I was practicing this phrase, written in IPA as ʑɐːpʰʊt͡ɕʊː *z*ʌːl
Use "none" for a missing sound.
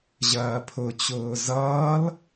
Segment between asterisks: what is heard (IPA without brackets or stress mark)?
z